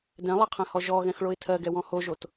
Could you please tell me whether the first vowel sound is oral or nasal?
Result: nasal